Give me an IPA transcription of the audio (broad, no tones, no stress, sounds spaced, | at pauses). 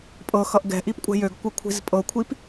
pʼ ɤ x ʌ ʔ ɡ ɛ̤ ʔ i p kʷʼ ɛ̤ j ø ɡ kʷ ɤ kʷʰ i̤ z pʼ ɤ kʷʰ i p